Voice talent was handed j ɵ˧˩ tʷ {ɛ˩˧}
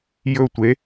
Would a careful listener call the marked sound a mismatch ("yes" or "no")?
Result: yes